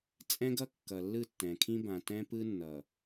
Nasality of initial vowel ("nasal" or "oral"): nasal